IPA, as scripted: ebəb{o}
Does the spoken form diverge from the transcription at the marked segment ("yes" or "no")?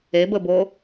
no